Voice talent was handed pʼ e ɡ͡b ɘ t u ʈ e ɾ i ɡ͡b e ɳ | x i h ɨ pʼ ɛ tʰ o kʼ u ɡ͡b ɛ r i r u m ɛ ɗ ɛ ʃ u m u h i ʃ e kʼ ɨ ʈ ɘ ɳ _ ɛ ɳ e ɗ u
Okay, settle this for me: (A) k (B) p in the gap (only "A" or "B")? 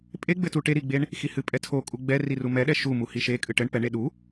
B